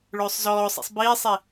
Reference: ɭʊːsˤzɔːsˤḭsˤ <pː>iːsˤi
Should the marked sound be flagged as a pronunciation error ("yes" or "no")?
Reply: yes